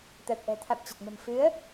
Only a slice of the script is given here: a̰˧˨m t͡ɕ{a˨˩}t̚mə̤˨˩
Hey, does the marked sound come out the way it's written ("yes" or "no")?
no